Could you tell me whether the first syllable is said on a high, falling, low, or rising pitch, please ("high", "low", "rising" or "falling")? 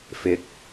rising